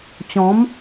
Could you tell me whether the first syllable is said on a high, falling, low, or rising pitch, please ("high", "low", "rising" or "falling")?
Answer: rising